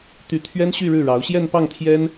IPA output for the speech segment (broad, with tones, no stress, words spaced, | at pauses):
t̪y˧˥t̪ʰɥɛ˥nɕy˥˧ ɻɻ̩˥˩ɻɑ˧˥ʊ̯ ɕjɛ˥˧npɑ˥˩ŋ t̪ʰjɛ˥n